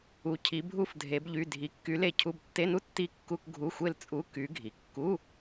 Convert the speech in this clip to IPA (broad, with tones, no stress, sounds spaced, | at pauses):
u˧˥ cʰ i˧˥ bʱ u˥˧ f dʱ e˧˥ b ʎ y˧˥˧ dʱ i˧˥ kː y˧˥ l e˥˩ cʰ u˥˧ b tː e˧˥˧ n u˥ tː i˥ kː u˥ k ɡʱ u˧˥˧ xʷ e˥˧ l t͡sʼ u˧˥˧ k y˧˥ ɡʱ i˩˧ kː u˧˥˧